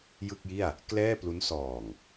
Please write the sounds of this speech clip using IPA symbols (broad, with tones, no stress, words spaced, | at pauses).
jɯ˥˩k̚ji˥˩a̯ | klɛː˥˩plu˦˥n sɔː˨˩ŋ